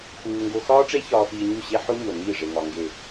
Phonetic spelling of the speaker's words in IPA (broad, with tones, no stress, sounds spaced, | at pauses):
x uː˧ ŋ ɡ o˧ x ɒː˦ ʈ͡ʂ e˦ ç ɒː˧ f iː˧ ɲ u˦˨ ɕ e˦ ħ o˦ ɲ o˨ n iː˦˨ ʐ e˨ ŋ ɒ˨ ŋ ɡ e˨